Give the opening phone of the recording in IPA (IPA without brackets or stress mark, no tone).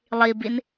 lˠ